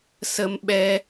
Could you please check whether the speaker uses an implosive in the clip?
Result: yes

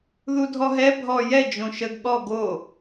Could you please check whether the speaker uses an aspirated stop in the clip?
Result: no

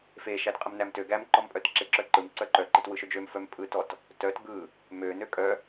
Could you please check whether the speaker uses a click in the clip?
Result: yes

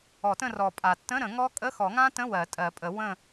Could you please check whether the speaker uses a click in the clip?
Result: no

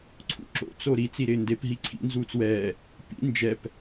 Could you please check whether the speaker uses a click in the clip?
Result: yes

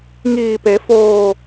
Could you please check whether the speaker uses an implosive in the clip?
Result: no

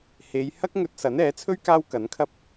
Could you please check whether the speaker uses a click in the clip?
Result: no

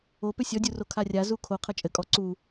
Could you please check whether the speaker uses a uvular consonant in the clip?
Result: yes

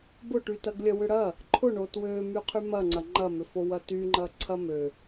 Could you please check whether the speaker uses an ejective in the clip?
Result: no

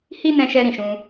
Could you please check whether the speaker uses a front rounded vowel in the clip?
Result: no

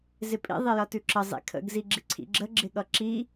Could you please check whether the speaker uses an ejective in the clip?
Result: yes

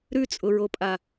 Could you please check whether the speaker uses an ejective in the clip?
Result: yes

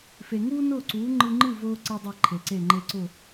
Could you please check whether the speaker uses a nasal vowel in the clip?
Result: no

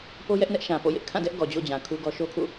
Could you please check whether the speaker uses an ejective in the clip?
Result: no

